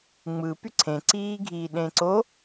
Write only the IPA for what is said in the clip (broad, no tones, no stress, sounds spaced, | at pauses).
ŋ͡m ɯ p y ǀʰ ẽ ǀ iː ɡʱ iː ɗ ẽ ǀ o